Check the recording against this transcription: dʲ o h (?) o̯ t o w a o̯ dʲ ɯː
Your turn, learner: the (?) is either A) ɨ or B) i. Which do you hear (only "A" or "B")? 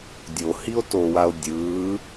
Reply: B